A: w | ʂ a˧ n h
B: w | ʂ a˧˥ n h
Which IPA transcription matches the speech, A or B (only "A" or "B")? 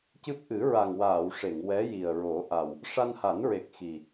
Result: A